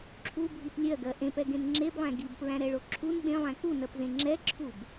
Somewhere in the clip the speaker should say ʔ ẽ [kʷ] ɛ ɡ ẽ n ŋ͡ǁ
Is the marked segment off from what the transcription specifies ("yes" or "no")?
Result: yes